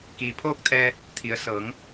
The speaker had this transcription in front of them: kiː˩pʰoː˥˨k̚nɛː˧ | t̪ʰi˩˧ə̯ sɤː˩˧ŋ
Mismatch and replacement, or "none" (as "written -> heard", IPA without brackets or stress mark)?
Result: n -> t̪ʰ